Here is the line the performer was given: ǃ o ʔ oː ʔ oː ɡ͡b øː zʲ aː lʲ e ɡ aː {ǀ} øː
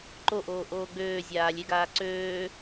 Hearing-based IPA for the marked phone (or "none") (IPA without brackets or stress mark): ǀ